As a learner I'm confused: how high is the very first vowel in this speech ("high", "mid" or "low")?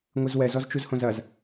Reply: high